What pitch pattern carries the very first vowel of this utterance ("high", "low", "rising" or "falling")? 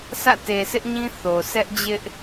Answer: falling